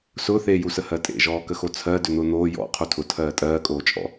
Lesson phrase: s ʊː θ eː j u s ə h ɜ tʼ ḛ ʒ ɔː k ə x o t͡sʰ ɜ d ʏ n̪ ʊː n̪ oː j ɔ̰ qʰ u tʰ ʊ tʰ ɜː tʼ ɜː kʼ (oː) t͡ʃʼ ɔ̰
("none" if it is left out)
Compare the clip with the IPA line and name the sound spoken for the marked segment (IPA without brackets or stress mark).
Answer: oː